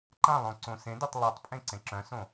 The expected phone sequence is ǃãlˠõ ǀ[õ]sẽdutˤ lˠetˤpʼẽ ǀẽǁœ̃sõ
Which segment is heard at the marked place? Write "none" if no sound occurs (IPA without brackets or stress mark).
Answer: õ